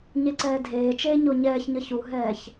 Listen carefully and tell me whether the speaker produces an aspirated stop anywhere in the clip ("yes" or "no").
no